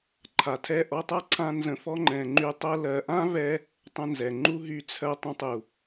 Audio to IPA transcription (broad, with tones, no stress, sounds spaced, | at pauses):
ǃʰ a˨ tʰ ɛ˦˨ ʔ ɔ˧ tˤ a˦ ǀʰ ã˧ n z ə̃˧ f ɔ˦ ŋ͡ǃ ɛ̃˨ ŋ͡ǃ y˧ tˤ ɜ˦ l ɜ˨ ʔ ã˦ v ɛ˧ | tˤ ə̃˧ n z ɛ˨ ŋ͡ǃ u˦ ɦ y˧ t͡sʰ ɜ˧ tˤ ə̃˧ tˤ u˨